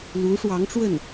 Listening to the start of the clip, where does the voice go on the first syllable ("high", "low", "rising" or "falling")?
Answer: rising